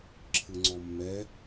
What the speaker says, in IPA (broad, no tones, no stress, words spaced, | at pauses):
ǁʰɯŋ͡ǀɔmːɛ